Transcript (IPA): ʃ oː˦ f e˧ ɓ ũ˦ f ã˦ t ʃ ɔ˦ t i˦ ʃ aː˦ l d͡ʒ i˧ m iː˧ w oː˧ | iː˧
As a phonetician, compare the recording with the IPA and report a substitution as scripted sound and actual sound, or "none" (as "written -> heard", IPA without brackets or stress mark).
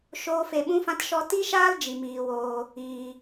none